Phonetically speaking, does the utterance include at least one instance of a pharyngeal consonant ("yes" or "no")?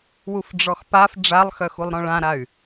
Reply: no